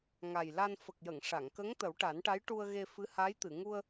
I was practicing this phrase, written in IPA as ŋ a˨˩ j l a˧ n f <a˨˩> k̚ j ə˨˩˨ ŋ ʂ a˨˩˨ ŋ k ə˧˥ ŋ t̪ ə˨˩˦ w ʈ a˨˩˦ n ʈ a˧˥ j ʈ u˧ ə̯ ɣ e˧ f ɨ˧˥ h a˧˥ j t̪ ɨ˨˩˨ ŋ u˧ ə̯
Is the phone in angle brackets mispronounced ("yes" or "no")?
yes